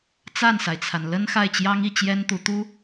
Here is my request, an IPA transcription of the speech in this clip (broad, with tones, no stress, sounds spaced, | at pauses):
t͡s a˥˩ n s a˩ ɪ̯ t͡sʰ a˩ n l ə˥ n x a˥˩ ɪ̯ t͡ɕ j ɑ˥ ŋ i˥˩ t͡ɕ j ɛ˥ n t̪ u˧˥ t̪ u˥